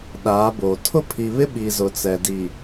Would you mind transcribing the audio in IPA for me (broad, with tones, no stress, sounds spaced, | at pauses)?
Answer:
ɗ aː˨˦ b oː˨ tʰ ʊ˦ pʰ i˨ β ɪ˦ ɓ i˨ z ʊ˨ t͡s ɛ˨ d i˨